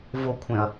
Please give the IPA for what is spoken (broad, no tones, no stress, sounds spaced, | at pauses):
v o kʷʰ ẽ ɐ̯